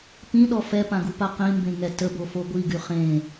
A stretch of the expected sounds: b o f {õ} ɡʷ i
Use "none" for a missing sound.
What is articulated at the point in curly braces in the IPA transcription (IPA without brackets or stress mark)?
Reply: o